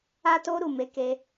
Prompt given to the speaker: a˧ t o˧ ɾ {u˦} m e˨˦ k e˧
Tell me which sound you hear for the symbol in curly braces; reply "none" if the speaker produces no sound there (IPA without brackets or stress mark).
u˨